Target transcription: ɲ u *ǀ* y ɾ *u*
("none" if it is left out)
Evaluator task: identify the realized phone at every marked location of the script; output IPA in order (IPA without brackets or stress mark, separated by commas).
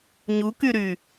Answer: k, y